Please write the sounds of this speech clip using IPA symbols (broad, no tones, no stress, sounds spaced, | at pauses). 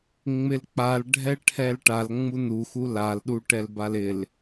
ŋ͡m ɪ l k͡p a l ɖʱ ɛ ʈʰ ɛ l ʈ a l ŋ͡m u n u x u l a l ɗ u ʈ ɛ l b a l ɪ l